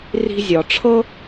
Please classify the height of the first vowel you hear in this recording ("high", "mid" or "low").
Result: high